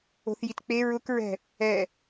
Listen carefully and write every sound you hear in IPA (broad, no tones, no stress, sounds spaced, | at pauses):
o̤ θ j i t k͡p e ɹ ʊ k ɹ ɛ̤ | ɛ